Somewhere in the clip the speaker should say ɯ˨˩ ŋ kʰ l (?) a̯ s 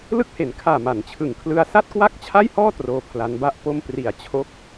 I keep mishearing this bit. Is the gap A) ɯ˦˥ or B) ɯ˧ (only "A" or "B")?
B